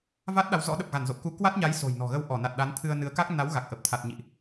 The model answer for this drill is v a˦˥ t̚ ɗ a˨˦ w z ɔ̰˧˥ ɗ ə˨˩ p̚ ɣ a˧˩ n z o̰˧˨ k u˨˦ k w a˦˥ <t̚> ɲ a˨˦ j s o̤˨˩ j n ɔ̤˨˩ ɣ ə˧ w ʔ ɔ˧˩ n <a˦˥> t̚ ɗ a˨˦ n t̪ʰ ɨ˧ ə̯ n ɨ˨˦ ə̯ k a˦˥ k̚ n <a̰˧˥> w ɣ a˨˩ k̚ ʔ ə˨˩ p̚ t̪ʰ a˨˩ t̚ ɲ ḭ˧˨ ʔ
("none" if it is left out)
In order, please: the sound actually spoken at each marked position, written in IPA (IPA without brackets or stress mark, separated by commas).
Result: t̚, a˨˩, a˨˦